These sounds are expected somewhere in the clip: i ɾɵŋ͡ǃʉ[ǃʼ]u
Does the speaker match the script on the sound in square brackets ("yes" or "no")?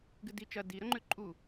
yes